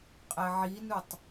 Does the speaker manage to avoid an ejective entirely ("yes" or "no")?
no